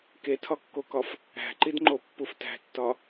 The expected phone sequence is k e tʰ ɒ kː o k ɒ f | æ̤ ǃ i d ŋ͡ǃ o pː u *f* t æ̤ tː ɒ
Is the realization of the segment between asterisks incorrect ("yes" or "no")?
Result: no